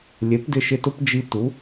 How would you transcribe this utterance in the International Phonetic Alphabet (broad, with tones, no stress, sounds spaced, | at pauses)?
lʲ e˩˥ p d ɪ˧ ʃ ɪ˧ t ʊ˥ p d͡ʒ i˧ t u˩˥